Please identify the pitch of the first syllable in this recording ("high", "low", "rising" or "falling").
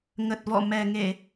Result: low